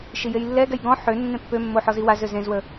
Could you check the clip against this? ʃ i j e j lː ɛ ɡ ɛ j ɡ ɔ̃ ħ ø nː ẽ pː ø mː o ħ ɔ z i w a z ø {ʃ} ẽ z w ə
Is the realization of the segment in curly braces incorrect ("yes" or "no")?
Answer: yes